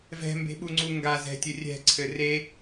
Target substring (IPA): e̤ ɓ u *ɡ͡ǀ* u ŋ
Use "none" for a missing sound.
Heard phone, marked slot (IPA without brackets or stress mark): ŋ͡ǀ